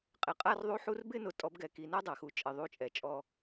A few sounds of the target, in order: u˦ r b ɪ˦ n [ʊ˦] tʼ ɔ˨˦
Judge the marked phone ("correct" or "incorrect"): incorrect